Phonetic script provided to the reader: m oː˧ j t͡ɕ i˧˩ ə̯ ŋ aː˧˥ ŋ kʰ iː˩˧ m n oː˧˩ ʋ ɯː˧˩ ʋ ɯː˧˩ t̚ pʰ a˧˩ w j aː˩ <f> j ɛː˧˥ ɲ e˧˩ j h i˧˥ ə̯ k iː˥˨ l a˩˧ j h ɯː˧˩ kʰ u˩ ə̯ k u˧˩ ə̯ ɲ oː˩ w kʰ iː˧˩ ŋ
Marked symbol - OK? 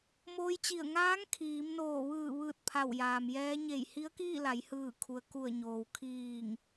no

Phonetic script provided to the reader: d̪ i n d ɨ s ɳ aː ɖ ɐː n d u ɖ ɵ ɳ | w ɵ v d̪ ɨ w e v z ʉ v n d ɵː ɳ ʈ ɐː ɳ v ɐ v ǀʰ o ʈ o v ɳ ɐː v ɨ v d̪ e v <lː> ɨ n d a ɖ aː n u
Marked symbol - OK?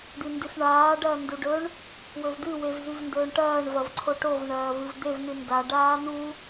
no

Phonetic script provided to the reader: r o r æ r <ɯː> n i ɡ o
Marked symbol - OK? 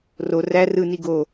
no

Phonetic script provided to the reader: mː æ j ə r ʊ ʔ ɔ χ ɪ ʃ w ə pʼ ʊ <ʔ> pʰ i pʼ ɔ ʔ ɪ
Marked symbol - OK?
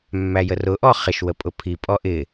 no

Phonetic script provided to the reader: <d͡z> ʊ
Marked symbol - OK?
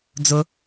yes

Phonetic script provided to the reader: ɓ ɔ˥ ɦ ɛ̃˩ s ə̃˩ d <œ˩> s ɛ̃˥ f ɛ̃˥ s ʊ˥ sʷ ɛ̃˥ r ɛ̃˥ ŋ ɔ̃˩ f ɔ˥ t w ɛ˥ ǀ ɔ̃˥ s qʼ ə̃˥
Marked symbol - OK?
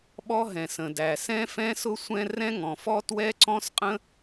no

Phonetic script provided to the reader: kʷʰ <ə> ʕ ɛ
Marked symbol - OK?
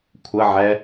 yes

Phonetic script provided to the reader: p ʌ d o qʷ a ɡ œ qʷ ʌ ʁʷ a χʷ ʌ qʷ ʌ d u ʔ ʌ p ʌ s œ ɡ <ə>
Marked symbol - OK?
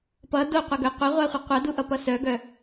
no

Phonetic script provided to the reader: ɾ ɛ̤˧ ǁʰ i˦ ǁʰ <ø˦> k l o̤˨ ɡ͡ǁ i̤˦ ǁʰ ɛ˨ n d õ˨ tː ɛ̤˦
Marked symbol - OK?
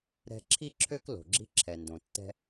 yes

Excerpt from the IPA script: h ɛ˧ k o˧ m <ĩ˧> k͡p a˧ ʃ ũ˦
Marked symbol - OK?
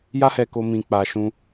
yes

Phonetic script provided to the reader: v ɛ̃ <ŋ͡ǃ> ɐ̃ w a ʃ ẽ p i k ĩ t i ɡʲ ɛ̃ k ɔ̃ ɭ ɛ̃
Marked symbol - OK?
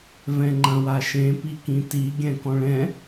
yes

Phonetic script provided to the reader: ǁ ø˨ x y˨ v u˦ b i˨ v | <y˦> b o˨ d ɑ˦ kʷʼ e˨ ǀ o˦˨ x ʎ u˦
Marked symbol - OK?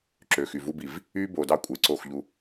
yes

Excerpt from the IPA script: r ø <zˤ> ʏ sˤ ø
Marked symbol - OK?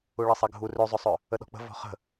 yes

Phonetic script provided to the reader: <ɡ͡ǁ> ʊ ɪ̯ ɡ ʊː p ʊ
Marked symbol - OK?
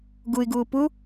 no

